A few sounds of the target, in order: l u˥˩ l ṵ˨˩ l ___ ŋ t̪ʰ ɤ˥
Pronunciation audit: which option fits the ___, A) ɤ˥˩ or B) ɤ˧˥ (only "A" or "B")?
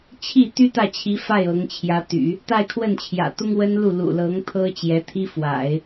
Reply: B